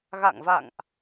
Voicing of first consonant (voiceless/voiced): voiced